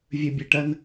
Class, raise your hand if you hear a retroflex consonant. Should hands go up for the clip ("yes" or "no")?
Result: yes